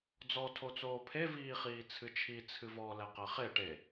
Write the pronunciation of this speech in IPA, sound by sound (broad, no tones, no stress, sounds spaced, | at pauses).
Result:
d͡z ɔ tʰ o t͡s oː pʰ e v iː χ iː t͡sʰ ɨ t͡ʃʰ i t͡sʰ ɨ v ɔ l ɛ q ɛ χ e ʈ e